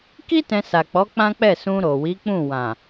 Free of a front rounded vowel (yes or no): yes